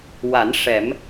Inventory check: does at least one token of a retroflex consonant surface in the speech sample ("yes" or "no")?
yes